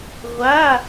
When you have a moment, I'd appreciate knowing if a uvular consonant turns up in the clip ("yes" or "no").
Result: yes